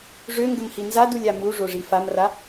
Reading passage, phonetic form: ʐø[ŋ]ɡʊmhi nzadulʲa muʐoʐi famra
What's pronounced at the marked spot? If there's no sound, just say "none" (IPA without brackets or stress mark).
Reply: ŋ